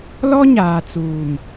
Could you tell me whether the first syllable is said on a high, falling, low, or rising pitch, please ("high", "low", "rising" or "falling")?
high